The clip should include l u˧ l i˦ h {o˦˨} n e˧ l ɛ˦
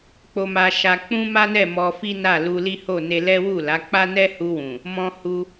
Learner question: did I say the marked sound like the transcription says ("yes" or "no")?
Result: yes